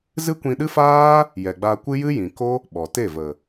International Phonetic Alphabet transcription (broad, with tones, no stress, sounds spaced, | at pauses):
z ɨ˦ kʷ ĩ˧ ɗ ɨ˦ f aː˦ | j ɛ˨ ɡ͡b a˧ kʷ ɨ˦ j ɨ˦ j ĩ˨ k o˦ | ɓ ɔ˨ t e˦˨ v ə˨